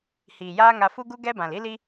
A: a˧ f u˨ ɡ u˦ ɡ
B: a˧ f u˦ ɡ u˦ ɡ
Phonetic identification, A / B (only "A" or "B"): B